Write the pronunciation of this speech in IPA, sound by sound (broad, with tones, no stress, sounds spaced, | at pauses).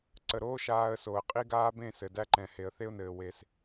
ǀ ə˨ ɾ oː˦ ʃ aː˧ ə̯ s o˨ ə̯ qʼ i˦ ɡ aː˦ b ẽ˦˨ s ɘ˨ d æ˦ ǃ ɛ̃˨ h e˨ ə̯ θ e˦ ʊ̯ n ɘː˨ w e˧ s